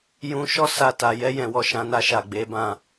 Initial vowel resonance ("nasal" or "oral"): nasal